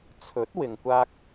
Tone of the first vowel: rising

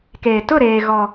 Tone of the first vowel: low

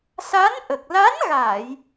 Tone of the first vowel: rising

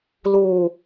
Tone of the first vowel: low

